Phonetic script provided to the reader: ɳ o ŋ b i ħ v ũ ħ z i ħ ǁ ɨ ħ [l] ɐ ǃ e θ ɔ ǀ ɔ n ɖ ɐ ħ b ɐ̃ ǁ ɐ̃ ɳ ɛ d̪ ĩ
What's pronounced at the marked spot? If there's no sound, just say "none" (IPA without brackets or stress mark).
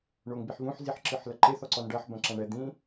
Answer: l